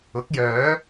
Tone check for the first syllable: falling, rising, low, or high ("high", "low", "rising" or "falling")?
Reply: rising